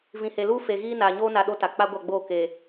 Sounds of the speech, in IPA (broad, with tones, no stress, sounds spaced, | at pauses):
v ĩ˨ h e˨ l uː˦ f e˨ ɣ iː˦ n aː˨ ɲ oː˦ n a˨ ɗ o˦ t a˨ k͡p a˦ ɡʷ a˦˨ ɡ͡b oː˦˨ k e˨